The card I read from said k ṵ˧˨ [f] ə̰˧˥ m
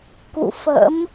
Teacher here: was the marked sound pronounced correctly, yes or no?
yes